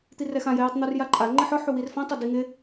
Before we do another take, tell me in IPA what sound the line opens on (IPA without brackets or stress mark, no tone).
t̪